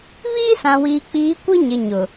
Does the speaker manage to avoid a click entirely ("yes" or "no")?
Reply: yes